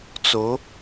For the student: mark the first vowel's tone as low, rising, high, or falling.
rising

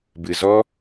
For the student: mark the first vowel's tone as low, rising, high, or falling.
low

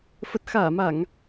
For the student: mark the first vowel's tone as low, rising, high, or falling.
low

